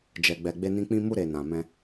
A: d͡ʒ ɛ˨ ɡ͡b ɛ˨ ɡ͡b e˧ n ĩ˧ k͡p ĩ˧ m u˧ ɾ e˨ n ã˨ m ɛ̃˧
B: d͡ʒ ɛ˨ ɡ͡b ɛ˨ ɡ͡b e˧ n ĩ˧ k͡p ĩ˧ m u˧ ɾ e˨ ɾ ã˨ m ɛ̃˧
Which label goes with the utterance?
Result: A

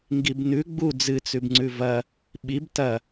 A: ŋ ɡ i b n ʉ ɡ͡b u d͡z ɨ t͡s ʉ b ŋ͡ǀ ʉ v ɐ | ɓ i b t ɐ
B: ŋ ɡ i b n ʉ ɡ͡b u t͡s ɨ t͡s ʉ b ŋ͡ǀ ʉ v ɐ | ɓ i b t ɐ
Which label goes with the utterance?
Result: A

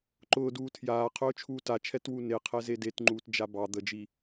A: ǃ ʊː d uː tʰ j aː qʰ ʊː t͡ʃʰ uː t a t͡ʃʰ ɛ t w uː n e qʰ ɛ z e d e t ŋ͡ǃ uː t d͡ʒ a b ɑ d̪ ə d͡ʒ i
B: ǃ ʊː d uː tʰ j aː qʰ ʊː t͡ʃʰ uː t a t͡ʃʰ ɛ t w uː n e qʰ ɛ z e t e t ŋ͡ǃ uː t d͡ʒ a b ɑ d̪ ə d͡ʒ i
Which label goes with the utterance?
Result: A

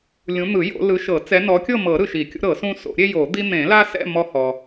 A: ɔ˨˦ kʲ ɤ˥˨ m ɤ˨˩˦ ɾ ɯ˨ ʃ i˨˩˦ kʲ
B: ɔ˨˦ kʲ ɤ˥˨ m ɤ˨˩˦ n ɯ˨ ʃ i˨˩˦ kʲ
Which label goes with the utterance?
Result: A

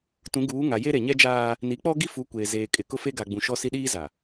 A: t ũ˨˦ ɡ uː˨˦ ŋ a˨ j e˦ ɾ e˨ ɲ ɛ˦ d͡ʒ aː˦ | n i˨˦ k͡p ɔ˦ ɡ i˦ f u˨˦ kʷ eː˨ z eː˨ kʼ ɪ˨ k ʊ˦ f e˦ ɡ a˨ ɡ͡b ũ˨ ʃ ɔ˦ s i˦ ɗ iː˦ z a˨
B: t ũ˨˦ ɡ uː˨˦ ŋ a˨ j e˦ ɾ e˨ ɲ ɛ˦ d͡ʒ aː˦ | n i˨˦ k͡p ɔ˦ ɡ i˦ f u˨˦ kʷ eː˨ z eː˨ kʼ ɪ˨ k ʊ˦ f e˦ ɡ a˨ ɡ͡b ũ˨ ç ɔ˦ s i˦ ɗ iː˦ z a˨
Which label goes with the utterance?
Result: A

